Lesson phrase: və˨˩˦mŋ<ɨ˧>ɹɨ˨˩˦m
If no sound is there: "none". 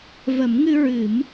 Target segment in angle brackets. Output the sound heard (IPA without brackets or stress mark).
ɨ˧